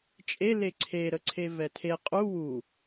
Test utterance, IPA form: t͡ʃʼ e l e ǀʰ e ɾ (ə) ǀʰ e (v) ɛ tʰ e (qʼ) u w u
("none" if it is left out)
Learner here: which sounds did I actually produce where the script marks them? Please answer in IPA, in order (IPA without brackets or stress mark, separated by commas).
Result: ə, v, qʼ